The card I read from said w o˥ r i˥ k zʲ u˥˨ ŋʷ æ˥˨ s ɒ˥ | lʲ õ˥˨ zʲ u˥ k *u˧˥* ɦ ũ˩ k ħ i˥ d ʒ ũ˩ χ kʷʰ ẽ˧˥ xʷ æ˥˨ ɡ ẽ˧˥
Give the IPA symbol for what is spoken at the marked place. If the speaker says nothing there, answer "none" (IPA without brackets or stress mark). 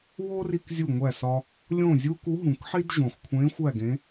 u˧˥